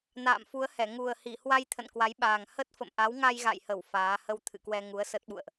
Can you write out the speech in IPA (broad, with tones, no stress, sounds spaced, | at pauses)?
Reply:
n a̰ː˧˨ m f u˨˦ ə̯ h ɛ˧˩ ŋ u˨˩ ə̯ h i˧˩ h w a˧ j t̪ʰ ə̰˧˨ n k w a˨˦ j ɓ aː˨˩ ŋ h ə˦˥ t̚ f ə̰˧˨ m ʔ a˨˦ w ŋ a˧ j ɣ a̰˧˨ j h ə˧˩ w f aː˨˦ h ə˧ w t̪ʰ ɨ̰˧˨ k w ɛ˧ ŋ u˨˦ ə̯ s ə˦˥ t̚ ɓ ṵ˧˨ ə̯ ʔ